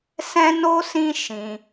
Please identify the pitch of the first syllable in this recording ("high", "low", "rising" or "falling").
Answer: high